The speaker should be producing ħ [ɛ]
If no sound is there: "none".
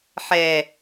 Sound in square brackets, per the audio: ɛ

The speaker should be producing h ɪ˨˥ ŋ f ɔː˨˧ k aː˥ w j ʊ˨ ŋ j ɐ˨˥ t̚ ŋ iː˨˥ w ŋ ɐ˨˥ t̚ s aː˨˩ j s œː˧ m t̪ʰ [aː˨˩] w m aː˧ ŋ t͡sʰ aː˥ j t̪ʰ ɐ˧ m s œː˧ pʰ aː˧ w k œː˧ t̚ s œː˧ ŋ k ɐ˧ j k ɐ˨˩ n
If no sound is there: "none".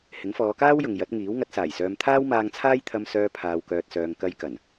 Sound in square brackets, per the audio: aː˥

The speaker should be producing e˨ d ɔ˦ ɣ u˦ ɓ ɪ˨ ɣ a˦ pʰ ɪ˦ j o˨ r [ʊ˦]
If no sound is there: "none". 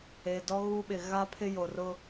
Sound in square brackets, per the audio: ʊ˦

